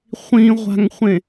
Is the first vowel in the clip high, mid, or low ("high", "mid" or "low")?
high